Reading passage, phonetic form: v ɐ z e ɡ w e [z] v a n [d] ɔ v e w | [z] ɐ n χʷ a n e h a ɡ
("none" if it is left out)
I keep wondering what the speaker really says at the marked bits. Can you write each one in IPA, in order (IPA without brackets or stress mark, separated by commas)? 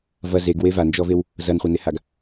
none, d͡ʒ, z